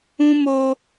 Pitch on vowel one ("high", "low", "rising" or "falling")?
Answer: high